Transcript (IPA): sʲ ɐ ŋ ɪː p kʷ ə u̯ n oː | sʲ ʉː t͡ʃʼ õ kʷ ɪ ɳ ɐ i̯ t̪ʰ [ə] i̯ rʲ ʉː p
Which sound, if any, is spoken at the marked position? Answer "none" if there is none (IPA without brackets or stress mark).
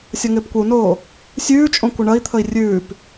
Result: ə